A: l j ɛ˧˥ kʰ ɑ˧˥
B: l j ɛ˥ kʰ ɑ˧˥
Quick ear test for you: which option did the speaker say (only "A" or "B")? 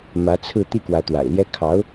B